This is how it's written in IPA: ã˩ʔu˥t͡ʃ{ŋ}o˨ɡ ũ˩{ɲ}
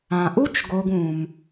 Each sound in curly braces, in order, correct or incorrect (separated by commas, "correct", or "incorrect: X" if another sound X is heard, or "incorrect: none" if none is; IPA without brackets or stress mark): incorrect: ɡ, incorrect: m